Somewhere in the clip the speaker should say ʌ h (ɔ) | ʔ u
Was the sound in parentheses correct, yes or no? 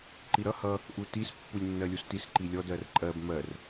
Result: no